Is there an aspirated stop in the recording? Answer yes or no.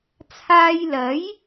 yes